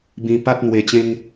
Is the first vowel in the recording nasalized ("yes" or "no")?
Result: yes